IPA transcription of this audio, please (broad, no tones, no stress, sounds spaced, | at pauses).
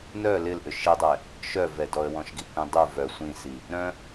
n œ l ɪ l ʔ ʏ ʃ i dˤ ɛ | ʃ œ v ɛ d ɔ ə̯ w ɔ̃ ʃ ɡ i kʷ ĩ dˤ u v œ sʷ ĩ s i | ɾ œ̃